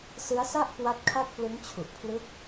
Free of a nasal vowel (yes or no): yes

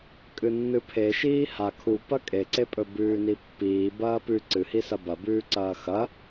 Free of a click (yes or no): no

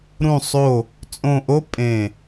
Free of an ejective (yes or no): no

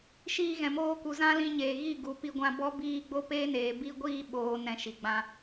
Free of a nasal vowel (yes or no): no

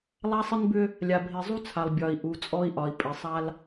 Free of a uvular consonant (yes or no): yes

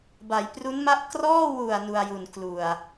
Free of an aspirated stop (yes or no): yes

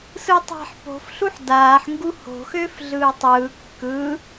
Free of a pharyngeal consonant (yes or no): no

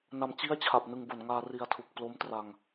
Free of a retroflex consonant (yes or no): yes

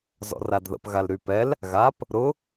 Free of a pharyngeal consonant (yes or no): yes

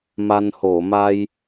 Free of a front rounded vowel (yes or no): yes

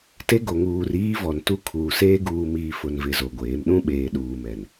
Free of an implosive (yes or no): no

